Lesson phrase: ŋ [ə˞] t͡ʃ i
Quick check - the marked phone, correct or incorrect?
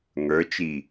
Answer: correct